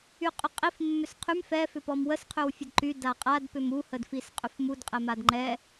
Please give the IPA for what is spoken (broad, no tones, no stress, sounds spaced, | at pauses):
y qʼ ʏ qʼ i f mː ʏ s qʰ y m f ɛ f ʏ p ɔ m w ə s qʰ ʏ w fʲ ə d ǃ y d a qʼ a d p ʏ m u h ə d f i s qʼ ʏ f m u d qʼ ɛ m a d ŋ͡ǃ ɛ